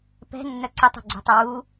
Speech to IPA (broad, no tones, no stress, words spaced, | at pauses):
pɛ̤ nːœǀətˤṳ ɡ͡ǀṳtˤəwu